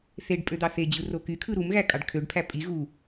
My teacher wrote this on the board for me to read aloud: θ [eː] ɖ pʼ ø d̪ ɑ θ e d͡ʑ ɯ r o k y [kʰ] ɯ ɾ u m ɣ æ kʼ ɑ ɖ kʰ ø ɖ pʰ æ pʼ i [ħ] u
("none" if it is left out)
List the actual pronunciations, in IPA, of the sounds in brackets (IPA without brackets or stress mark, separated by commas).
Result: e, kʰ, ɣ